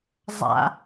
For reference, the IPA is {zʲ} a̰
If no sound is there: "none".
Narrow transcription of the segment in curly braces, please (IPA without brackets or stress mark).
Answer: zˤ